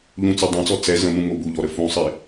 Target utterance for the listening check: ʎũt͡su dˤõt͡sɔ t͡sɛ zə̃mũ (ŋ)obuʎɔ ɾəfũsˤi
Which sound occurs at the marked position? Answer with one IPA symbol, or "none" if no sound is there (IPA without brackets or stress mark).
ŋ